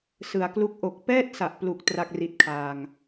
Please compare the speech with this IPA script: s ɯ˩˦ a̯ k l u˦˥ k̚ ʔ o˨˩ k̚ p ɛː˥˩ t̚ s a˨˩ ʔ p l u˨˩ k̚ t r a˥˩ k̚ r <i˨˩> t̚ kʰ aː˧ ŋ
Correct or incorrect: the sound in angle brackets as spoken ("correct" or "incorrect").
incorrect